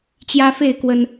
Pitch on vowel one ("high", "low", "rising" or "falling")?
high